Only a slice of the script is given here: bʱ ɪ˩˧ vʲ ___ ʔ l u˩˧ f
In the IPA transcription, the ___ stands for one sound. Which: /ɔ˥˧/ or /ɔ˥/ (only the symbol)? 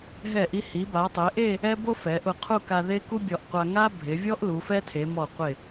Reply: ɔ˥